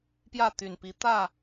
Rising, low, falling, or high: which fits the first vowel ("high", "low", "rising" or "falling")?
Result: falling